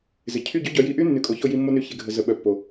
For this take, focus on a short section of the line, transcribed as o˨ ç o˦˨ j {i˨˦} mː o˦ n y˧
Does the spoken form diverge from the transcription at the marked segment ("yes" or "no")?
yes